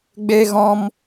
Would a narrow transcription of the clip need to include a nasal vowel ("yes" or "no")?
yes